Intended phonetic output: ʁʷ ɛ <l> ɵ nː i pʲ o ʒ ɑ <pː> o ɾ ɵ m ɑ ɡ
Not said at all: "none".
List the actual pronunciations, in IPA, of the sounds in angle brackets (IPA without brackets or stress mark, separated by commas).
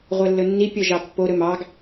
lː, pː